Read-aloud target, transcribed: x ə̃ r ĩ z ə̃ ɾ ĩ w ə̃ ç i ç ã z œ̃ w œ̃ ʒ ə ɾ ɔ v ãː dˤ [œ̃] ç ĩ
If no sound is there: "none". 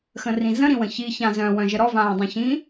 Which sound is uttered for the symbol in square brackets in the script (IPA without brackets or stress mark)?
œ̃